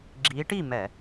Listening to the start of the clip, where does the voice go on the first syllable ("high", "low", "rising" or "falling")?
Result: rising